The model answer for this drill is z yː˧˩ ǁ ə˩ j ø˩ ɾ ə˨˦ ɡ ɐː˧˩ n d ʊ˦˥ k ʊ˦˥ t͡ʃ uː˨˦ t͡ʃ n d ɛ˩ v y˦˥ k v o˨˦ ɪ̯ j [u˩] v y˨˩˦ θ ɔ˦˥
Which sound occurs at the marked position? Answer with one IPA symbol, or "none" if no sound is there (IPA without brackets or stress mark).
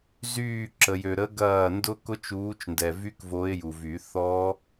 u˩